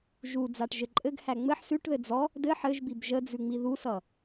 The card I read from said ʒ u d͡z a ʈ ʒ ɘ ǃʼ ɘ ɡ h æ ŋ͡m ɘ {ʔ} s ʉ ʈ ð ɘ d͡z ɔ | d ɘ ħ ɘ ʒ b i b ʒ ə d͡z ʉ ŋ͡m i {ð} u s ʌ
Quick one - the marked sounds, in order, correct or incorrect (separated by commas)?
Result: incorrect, correct